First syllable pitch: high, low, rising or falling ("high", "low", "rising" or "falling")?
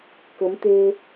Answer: rising